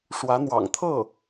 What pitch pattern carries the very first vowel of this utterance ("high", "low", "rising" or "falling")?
rising